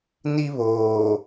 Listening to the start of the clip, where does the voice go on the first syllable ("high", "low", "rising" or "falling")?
high